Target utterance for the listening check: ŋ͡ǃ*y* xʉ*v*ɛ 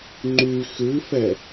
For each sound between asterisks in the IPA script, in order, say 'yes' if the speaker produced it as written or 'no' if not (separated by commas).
yes, no